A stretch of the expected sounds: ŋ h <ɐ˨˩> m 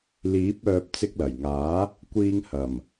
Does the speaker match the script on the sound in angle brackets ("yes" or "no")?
yes